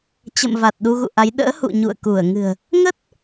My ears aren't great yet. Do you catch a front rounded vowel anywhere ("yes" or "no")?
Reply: no